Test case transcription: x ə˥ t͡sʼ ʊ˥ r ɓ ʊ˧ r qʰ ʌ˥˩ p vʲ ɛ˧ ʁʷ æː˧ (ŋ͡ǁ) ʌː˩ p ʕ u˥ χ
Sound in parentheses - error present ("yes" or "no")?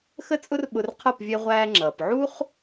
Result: no